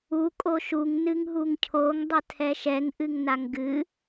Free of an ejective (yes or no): no